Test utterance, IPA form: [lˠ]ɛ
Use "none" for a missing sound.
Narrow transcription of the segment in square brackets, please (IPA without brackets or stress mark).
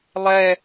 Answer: lˠ